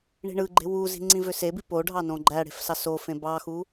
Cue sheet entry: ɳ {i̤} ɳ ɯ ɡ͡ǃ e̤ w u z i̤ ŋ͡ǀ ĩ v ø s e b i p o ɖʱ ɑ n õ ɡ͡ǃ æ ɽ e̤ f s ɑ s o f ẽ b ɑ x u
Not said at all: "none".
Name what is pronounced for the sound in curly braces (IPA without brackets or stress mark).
i̤